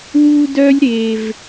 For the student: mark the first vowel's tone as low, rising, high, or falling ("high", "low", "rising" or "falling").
high